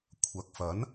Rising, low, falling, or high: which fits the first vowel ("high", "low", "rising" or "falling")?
low